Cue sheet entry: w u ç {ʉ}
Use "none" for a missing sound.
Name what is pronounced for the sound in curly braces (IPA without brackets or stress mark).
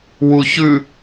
ʉ